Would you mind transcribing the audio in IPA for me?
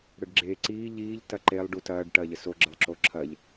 ɽ ə ɖ ɡ͡ǁ e ǀ iː ʎ iː ʎ t ɐ ǃ e lˠ ɖ u t ɐː ɖ ʈ ɐː ʎ ə s o ɡ͡ǁ ə lˠ ǁ o ǁʰ ɐ ʎ

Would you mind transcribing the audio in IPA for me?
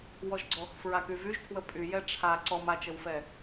w ɔ ʒ ɡ͡ǀ ɔ x f ɹ a k y v y ʒ tʰ w ə pʼ y j ɛ ʈ͡ʂʰ a ǀ ɔ m a t͡ʃ ə w f ɛ

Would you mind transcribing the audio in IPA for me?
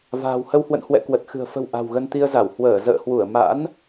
v a̤ː˨˩ w h ə˧ w h w ə̰˧˨ n h w ɛ̰˧˨ k w ə˨˩ t̚ x ɨ̤˨˩ ə̯ f ə̤˨˩ w ʔ a̤˨˩ w ɣ ə˧ n t̪ i˧ ə̯ z a˧˩ w h w əː˧˩ z ə̰ː˧˨ h w u˧˩ ə̯ m a̰˧˥ n

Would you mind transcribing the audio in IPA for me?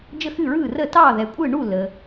d͡ʒ ə˥˩ x ɨ˥˩ ɹ ɯː˥˩ r əː˥˩ t ɑː˥˩ ð ɛ˩ kʷʼ ɯː˥˩ ɳ u˥˩ lː ə˩

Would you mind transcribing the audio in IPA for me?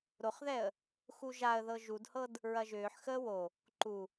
ɾ o χ ð ɛ ə̯ | x u ʒ a ə̯ ð ɤ ʒ u d h ɤ d | ɹ ɐ ʒ ʏː ħ x əː w o | ǃ u

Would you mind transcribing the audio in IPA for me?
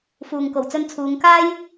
f uː˨ ŋ k o˨˩ w t͡s ɵ˧ n t͡sʰ uː˨˧ ŋ k aː˥ j

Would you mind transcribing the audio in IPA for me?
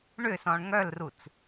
ɳ ʏ s ɔ̃ ɳ ŋ œ l r u t͡s

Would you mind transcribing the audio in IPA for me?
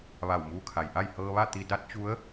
ʋ a˧˩ w m uː˧ kʰ a˩ j ʔ a˥˨ j h ɤː˧ ʋ a˥˨ t̪ i˧ d a˧˥ t̚ t͡ɕ u˧˥ ə̯

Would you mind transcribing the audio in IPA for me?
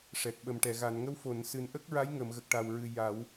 ʂ ɛ˨˩ k̚ ɓ ə˨˩ m ʈ ɛ˨˩˨ ɣ a˨˩˨ n ŋ ə˧˥ w f o˨˩˨ n s ɨ˨˩ n ʔ ə˦˥ k̚ ɹ a˧˥ j ŋ ə˨˩˨ m ɣ ə˨˩ k̚ ʈ a˨˩ w ɹ ɨ˨˩ j a˨˩˦ w

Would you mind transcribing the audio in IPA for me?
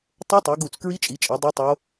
tˤ o˦˥ tˤ u˨˦ ɡ u˥˩ t͡s k ɹ i˦˥ t͡ʃʼ i˨˦ t͡ʃʼ e˨˦ dˤ ɛ˦˥ tˤ o˦˥

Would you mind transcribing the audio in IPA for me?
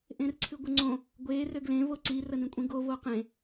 ʔ ẽ r ǀʰ ɨ ɡʷ ə ŋ͡ǀ õ | ɡʷ e r ø ɡ l ẽ v o ǀ i r ə n ĩ kʷʼ ĩ ɡ o v o q ẽ

